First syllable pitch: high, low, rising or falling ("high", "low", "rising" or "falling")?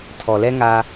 low